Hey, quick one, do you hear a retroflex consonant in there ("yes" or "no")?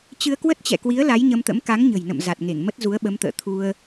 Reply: no